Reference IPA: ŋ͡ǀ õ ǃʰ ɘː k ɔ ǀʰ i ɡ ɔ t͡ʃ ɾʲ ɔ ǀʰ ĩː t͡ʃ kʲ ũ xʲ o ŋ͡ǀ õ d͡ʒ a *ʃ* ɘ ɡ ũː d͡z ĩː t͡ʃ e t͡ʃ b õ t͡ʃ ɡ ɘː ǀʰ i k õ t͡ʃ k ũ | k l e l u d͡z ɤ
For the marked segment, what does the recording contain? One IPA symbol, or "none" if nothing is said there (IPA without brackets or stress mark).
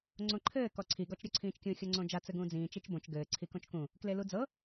t͡s